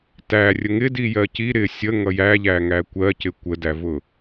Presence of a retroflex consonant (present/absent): absent